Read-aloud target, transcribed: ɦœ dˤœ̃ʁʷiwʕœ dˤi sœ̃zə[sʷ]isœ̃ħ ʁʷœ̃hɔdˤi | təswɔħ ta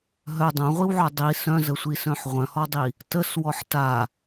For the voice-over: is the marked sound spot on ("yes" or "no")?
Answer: yes